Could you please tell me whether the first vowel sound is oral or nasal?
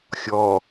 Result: oral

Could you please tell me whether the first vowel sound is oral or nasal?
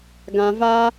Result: nasal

